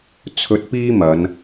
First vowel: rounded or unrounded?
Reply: rounded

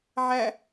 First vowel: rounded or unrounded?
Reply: unrounded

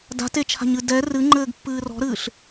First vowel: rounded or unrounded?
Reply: unrounded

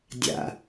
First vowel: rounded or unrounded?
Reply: unrounded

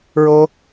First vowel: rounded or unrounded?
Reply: rounded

